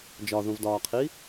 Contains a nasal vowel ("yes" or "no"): yes